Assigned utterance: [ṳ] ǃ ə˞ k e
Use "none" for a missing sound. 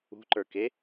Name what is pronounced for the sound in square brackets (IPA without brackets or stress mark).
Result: ṳ